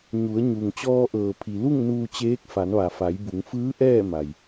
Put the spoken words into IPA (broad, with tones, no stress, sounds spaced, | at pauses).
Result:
ɲ u˩˧ ə̯ ɲ u˩ ŋ t͡ɕ ɔː˧ ʔ ɤː˩ pʰ i˩ l u˥˨ ŋ n uː˧ t͡ɕ eː˧˥ k̚ f a˩˧ n ʋ a˩ f a˩˧ j b u˩˧ ŋ f ɯː˧˥ ʔ ɛː˥˨ m a˩ j